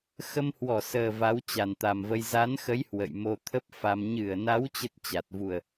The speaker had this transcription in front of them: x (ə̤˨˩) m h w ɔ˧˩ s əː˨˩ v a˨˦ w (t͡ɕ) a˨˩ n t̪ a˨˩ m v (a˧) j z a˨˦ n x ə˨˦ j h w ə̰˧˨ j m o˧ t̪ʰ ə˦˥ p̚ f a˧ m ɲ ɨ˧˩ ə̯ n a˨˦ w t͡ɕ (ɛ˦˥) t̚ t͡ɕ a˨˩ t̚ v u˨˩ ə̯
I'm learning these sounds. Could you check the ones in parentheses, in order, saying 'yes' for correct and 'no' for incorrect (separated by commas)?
no, yes, no, no